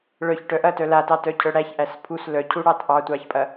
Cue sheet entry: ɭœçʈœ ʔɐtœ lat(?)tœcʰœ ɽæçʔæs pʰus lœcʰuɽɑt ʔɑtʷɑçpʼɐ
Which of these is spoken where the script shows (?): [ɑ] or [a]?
ɑ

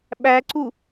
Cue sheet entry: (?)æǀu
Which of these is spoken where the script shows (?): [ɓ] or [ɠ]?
ɓ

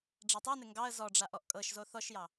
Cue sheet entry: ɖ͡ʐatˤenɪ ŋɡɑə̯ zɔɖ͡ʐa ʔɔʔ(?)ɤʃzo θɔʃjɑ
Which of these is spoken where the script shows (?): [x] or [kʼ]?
kʼ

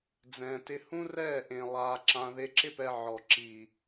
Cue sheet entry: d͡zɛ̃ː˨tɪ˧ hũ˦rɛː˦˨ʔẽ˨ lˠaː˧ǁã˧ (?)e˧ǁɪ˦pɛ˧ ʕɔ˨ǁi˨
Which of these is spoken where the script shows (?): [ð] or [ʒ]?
ð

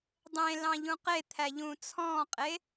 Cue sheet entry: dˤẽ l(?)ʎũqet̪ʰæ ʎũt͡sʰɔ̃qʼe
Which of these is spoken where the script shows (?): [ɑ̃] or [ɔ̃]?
ɑ̃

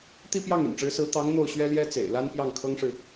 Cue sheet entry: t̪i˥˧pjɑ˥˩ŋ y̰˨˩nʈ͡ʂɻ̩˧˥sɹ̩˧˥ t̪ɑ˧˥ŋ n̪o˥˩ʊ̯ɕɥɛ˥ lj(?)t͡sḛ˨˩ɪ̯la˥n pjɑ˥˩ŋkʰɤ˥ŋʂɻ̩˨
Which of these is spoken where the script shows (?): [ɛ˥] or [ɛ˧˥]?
ɛ˥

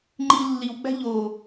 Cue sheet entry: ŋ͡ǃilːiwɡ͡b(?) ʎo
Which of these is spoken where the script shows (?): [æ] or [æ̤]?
æ̤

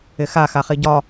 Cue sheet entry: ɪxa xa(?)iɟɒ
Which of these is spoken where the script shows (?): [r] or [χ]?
χ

